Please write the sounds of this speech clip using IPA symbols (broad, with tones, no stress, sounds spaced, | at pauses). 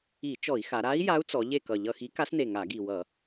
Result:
i˧˩˧ t͡ʃ ɔ˧˩˧ i̯ x a˩˧ ɾ a˧˥ i̯ j a˧˥ u̯ t͡s ɔ˩˧ ʎ e˦˨ k ʌ˨˩ ʎ ʌ˦˨ x i˧˥ k a˧˥ s n e˨˩ ŋ a˧˩˧ ɡ i˨˩ w ʌ˧˩˧